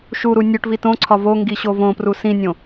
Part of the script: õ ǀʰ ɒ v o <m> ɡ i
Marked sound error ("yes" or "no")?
yes